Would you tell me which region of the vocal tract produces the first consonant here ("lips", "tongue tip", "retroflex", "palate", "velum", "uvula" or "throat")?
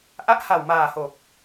throat